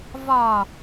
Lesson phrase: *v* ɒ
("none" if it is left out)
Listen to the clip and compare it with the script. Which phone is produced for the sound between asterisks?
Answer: v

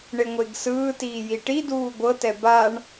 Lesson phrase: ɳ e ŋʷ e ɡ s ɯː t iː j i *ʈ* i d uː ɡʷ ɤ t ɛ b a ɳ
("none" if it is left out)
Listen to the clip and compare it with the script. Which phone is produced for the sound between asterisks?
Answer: ʈ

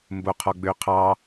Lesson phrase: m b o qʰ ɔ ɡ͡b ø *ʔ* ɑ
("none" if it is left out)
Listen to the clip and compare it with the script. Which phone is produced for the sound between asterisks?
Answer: qʰ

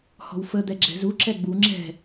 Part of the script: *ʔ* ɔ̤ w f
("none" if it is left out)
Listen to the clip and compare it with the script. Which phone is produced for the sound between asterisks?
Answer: h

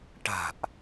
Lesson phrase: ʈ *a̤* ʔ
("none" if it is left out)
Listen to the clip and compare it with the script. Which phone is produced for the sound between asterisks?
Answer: a̤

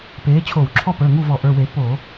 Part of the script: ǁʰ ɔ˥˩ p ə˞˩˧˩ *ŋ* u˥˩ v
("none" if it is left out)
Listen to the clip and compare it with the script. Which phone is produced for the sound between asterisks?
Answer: ŋ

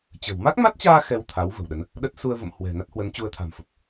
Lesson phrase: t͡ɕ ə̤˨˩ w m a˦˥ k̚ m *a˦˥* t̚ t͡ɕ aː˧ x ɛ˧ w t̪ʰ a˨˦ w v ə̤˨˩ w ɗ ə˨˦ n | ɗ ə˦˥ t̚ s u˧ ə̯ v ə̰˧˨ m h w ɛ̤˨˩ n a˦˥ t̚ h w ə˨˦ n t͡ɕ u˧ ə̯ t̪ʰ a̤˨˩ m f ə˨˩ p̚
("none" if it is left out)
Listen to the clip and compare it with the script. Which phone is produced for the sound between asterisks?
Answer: a˦˥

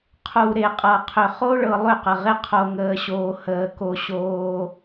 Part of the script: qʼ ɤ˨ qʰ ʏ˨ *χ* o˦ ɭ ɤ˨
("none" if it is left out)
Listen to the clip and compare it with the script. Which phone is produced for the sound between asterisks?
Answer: χ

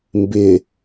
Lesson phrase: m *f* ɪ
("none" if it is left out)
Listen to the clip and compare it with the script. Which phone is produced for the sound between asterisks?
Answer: b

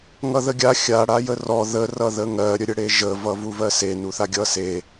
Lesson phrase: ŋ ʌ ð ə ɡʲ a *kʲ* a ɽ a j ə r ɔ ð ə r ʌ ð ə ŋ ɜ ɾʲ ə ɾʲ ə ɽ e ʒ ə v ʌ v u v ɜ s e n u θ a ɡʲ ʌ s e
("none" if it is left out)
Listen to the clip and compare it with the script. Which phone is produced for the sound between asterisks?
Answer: xʲ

